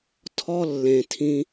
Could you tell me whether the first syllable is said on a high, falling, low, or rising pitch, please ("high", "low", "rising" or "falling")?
high